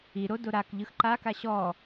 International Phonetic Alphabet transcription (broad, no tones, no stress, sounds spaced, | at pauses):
i ɾ o d o ɾ a k ʎ ɯ x ǃ a k a ɕ ɔ